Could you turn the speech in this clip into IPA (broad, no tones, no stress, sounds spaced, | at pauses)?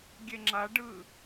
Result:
ɡʲ e ŋ͡ǁ a ɖ ɯ